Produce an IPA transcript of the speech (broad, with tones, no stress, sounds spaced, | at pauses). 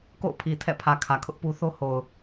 k o̰˦˨ ʊ̯ pʰ i˨ tʰ ɛ̰˦˨ pʰ ä˨ kʰ ä˨ kʰ ʊ˦ ʔ p u˦ θ o˦ h o˨ ʊ̯